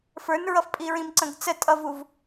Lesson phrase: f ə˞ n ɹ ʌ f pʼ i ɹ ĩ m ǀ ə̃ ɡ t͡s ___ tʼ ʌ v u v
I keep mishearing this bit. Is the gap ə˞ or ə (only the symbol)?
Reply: ə